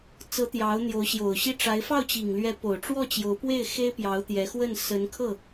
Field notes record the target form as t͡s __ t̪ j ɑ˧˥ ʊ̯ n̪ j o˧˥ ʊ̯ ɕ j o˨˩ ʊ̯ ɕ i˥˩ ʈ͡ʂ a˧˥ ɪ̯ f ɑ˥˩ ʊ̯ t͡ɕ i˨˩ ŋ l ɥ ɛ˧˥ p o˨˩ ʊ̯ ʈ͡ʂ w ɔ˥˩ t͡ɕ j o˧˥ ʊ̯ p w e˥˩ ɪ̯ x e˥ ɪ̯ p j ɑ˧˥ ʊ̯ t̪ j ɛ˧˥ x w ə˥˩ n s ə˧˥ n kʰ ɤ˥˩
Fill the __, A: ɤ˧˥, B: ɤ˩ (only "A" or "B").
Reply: A